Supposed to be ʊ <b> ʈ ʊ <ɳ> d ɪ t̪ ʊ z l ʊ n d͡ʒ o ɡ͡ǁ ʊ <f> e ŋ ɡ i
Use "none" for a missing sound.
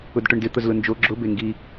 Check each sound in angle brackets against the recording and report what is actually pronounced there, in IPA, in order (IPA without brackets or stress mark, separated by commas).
d, ɳ, b